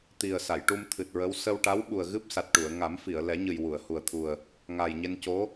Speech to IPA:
t̪ i˨˩ ə̯ s a˨˩˨ j ʈ u˧ m t̪ʰ ɨ˨˩ t̚ ɹ ə˧˥ w s ə˧ w ʈ a˧˥ w ɓ u˨˩ ə̯ ɣ ɨ˦˥ p̚ s a˨˩ t̚ ʈ u˨˩˨ ə̯ ŋ a˨˩˦ m f i˨˩˨ ə̯ l ɛ˨˩˦ ɲ ɨ˨˩ j w u˨˩˨ ə̯ h u˨˩ ə̯ t̪ʰ u˨˩ ə̯ | ŋ a˨˩ j ɲ e˧ n c o˧˥

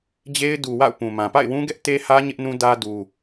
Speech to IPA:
d͡ʑ e˦ ɪ̯ d u˨ w a̰˦˨ ʊ̯ p ũ˨ m ã˨ p a̰˦˨ ɪ̯ w ũ˦ ɡ ɛ˦ ʔ t e˦ h ä˦ ɲ ɪ˦ ʔ n ũ˦ d ä˦ d u˦

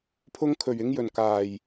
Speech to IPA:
pʰ ʊ˧ ŋ kʰ ɵ˨˩ ɥ ɪ˧ ŋ j ɵ˨˩ n k aː˨˩ j

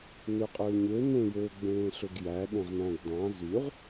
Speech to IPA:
n ø qʼ øː ɲ ø n ẽ j øː ɡ͡b ẽː ɬ ø ɡ j æ ɗ ẽ ʁ n æ̃ ɡ d̪ ɑ̃ z y ʁ

